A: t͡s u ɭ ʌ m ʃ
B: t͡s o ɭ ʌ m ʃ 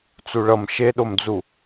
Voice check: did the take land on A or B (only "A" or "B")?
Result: A